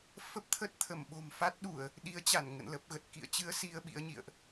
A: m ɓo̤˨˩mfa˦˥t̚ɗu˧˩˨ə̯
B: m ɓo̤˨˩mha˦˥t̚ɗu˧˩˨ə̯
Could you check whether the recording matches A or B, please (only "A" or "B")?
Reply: A